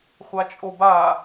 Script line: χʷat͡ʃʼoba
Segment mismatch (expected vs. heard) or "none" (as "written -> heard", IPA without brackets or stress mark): none